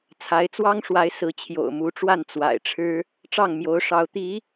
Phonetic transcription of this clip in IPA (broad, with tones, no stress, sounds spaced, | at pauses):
t͡sʰ a˧˥ ɪ̯ t͡s w ɑ˥ ŋ ʂ w a˧˥ ɪ̯ s ɹ̩˧˥ t͡ɕʰ j o̰˨˩ ʊ̯ m u˧˥ ʈ͡ʂ w a˥˩ n t͡s w a̰˨˩ ɪ̯ ʈ͡ʂʰ ɻ̩˥ | ʈ͡ʂ ɑ˥˩ ŋ m j o˧˥ ʊ̯ ʂ ɑ˧˥ ʊ̯ t̪ i˧˥